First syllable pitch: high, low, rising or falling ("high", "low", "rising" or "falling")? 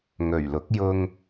low